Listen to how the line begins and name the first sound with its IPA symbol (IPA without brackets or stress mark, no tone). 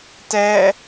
t